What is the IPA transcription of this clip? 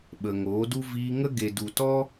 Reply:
ɓ ə˨ ŋ oː˨˦ d u˦ v iː˧ ŋ ə˦ ɡ e˨ d u˨ t ɔ˦

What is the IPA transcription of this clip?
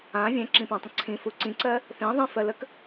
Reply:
ã vʲ ɛ̃ ǁ ĩ p ɛ̃ tˤ ə̃ ǀʰ ĩ f u ǀ ĩ ǀ ɜ | θ ĩ ðˤ ĩ f ɜ l ə k

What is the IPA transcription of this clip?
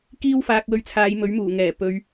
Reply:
k iː˥ w f aː˧ k̚ w ɵ˧ ɥ t͡sʰ aː˨˧ j m ɵ˨˥ ɥ m uː˨˩ ŋ ɛː˨˩ p ɵ˨˧ ɥ

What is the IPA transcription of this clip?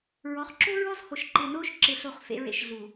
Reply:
ɹ ɔ˨˦ χ ǁ o˦ ɹ ɔ˦ z h o˨ ʃ ǃ ɪː˨ n oː˦ ʃ ǁ ɪ˨ ɬ o˨ χ f ḛ˨ ɹ ḛ˦ ʃ ɮ u˨

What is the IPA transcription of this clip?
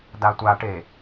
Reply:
d a tʷ a ʈ e

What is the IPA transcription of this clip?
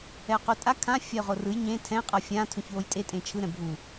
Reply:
ɛ ʊ̯ q u tʼ a kʰ ã fʲ a ʊ̯ ʁ o r ɯ j ɲ ẽ tʰ ɛ̃ qʼ ʌ fʲ ã tʰ ũ ç w o j tʼ e tʼ ẽ t͡ʃʰ ɯ ɾ ɛ̃ bʱ u

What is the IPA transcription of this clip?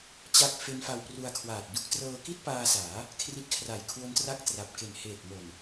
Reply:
t͡ɕ a˦˥ k̚ f e˦˥ n f a˧ w p r u˧ a̯ kʰ w aː˨˩ t̚ d u˥˩ k̚ t r ɤː˧ k i˥˩ t̚ p aː˧ s aː˩˦ | kʰ r i˦˥ t̚ kʰ r a˨˩ j kʰ w o˦˥ n t r a˥˩ k̚ t r a˨˩ p̚ k e˨˩ n h eː˨˩ t̚ m o˨˩ n

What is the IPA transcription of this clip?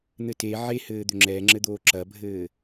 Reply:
n̪ ɘ t e ʕ e h ɘː d̪ ø ŋ͡ǁ ɛ ŋ͡ǁ ɘ d̪ oː ǁ ɐ bʱ ɘː

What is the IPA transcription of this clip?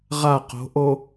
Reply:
ʁ a q o̤ ʔ o

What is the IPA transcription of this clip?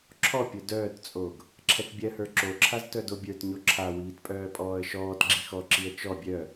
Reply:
ǁʰ ɔ pʲ o d œː t t͡sʼ o ɡ | ǁʰ ɛ t bʲ ɜ h ə˞ ǁ o ǁʰ a z t œ d o bʲ ə˞ t ɲ o ǁʰ a w iː t pʼ œː pʼ ɔː ə̯ ʃ ɔː t ɡ͡ǁ i x ɔ ǁ i ə̯ t͡ʃ ɔ bʲ œ

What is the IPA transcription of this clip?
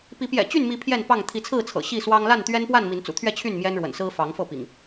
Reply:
p i˨˦ p j ɛ̰˨˩ t͡ɕ y˥˨ n m i˨˦ pʰ j ɛ˥˨ n p ɑ˥˨ ŋ t̪ʰ i˨˦ t͡sʰ ɹ̩˥˨ t͡sʰ ɤ̰˨˩ ɕ i˥˨ s w ɑ˦ ŋ l a˥˨ n t̪ ɥ ɛ˦ n p w a˥˨ n m i˨˦ n t͡s ṵ˨˩ t̪ʰ ɥ ɛ˥˨ t͡ɕʰ y˥˨ n m j ɛ˦ n ɻ w ə̰˨˩ n s ɹ̩˦ f ɑ˨˦ ŋ f ɤ˥˨ p ḭ˨˩ ŋ

